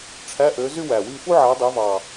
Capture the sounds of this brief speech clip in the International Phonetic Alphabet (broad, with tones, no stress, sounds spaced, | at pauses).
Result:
ʈ͡ʂʰ æ˧˥˧ ʔ ø˨˦ z y˥ w æ˨˩ w i˥˧ f u˥ ʕ æ˨˦ dˤ e˨˦ v ɑ˨˩